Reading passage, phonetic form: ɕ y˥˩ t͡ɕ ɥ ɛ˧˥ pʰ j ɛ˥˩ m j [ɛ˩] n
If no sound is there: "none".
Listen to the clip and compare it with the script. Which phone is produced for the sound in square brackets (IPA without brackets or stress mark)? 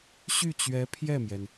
ɛ˩